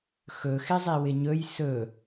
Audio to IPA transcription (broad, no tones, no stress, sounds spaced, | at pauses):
x ɵ x ɪ zˤ i w ɪ ɲ ɵ j s ɵ